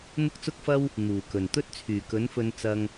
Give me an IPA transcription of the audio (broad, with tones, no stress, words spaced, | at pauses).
n̪ʊ˥k̚t͡sʊ˥k̚fɐ˥w | n̪uː˨˩kɵ˨˩n t̪ɵ˥t̚t͡sʰyː˨˩kɵ˨˥n fɵ˧n t͡sɐ˧ŋ